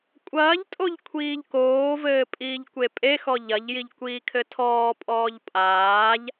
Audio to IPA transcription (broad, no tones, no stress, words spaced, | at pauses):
kʷʼɐːʎtʼoʎ kʷʰiːʎkoːvɘː pʼiːʎkʷepʼexɔ ʎɐʎjiʎ kʷiːkʰɘtʰɔːpʼɔːʎ pʼaːʎ